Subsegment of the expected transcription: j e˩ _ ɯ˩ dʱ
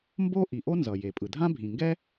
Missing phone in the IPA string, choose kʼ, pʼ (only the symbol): pʼ